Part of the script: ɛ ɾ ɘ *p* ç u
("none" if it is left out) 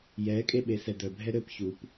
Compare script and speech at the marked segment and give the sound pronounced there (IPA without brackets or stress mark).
p